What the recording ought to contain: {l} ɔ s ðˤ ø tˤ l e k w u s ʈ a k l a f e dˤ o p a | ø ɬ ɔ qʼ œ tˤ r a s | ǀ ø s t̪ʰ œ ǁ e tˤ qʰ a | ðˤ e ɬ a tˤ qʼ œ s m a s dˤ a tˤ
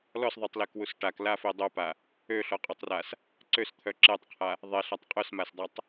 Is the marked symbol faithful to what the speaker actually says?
yes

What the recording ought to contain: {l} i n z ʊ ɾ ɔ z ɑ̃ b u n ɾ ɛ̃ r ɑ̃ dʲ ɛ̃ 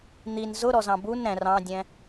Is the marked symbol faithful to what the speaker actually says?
no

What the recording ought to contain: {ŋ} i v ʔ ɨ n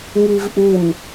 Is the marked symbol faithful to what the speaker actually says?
yes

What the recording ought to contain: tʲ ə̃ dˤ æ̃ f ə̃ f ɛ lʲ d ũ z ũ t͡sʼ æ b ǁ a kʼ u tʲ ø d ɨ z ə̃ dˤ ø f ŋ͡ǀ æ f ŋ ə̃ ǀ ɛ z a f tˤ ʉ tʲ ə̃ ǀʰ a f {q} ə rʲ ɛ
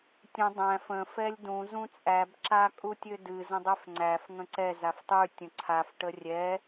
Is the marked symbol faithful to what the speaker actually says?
no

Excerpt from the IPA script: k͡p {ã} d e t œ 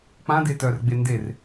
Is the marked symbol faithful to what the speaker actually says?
yes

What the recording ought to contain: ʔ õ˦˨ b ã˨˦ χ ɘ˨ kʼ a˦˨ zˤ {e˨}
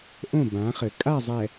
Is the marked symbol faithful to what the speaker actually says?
no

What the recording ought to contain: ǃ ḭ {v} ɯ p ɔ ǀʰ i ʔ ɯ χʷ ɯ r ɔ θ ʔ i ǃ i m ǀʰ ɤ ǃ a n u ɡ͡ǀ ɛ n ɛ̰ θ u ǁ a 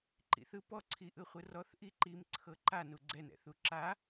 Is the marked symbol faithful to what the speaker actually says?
no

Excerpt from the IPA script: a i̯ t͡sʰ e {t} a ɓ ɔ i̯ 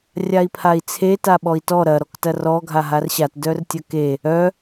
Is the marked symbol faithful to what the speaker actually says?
yes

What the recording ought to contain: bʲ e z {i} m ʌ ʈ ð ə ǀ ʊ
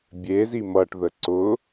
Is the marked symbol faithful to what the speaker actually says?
yes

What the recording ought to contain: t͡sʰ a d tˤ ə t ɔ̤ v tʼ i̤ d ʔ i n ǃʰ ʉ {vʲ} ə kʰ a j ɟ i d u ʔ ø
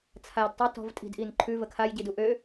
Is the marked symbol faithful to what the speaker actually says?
no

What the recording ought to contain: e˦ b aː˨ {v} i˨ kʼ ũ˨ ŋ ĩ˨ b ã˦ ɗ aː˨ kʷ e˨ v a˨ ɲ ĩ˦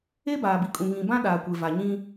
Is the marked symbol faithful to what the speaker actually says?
no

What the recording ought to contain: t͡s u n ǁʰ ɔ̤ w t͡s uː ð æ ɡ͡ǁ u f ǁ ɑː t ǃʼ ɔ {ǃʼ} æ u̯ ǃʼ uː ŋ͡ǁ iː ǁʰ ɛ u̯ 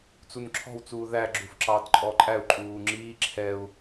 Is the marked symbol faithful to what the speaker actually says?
yes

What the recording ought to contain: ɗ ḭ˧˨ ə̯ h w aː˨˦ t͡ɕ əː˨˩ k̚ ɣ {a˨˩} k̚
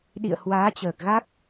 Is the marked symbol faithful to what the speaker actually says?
no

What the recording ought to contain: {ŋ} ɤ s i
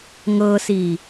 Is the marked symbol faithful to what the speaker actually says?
yes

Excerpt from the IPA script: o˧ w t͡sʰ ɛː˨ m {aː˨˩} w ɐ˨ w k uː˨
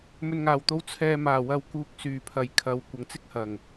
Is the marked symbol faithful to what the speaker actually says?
yes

